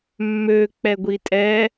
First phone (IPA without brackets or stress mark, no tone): mː